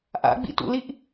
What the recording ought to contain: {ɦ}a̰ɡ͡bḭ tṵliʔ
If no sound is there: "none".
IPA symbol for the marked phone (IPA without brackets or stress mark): ʔ